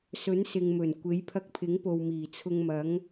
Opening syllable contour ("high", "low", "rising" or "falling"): rising